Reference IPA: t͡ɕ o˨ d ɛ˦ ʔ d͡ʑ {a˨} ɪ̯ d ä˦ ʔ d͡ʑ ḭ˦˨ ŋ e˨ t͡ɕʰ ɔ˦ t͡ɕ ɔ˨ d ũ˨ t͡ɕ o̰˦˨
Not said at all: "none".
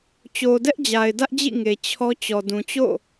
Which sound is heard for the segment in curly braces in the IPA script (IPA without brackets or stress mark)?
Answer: a˨